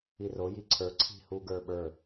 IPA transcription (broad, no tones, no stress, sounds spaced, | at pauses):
i r o j i ǀʰ ə˞ ǀʰ i̤ h u ɡ ə˞ ɓ ə˞